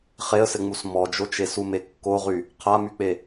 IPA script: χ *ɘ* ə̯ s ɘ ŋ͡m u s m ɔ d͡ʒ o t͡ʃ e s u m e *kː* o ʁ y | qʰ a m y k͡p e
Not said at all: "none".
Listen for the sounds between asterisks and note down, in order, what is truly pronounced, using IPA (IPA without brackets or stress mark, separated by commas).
e, kː